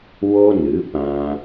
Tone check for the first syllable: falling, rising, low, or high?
high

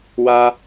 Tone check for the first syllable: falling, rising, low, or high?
high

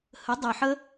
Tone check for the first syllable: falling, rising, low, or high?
rising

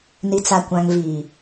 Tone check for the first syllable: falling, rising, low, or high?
low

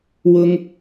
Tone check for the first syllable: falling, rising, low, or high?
high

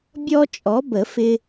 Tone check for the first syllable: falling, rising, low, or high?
high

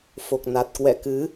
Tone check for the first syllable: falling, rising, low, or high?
low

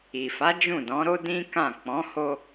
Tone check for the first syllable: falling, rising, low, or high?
low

